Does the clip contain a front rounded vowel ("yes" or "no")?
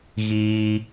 no